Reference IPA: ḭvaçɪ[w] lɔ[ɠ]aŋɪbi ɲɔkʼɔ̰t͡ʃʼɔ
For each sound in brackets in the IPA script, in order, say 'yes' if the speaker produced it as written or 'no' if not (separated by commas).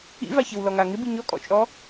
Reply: yes, no